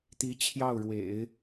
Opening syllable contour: rising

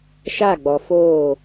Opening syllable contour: falling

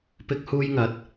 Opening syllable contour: high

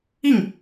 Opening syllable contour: falling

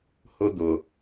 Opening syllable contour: high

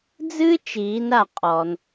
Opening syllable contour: high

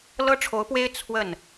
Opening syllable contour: high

